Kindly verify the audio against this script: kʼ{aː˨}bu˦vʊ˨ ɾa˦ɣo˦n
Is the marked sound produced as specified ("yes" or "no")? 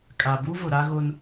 no